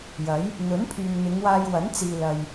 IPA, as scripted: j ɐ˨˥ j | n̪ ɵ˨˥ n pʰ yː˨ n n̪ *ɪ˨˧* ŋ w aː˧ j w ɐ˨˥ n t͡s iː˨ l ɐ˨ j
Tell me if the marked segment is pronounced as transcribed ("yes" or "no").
yes